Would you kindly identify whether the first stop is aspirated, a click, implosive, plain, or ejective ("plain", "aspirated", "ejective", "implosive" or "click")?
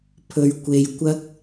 aspirated